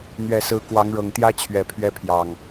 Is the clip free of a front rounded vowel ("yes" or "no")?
yes